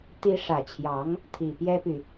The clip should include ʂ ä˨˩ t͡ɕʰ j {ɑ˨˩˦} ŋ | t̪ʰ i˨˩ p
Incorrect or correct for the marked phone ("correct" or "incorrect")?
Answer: incorrect